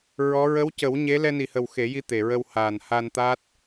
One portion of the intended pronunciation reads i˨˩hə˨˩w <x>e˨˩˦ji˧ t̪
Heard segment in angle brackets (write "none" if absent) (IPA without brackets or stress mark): x